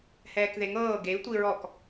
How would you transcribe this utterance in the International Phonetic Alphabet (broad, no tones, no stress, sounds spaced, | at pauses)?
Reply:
h ɛː k ð e ŋ ɤː ɡ e i̯ tʷ i ɹ ɔ k